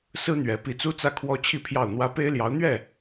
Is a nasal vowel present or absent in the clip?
absent